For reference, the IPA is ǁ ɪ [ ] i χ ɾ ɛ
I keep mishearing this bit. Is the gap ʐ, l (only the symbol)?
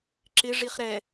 ʐ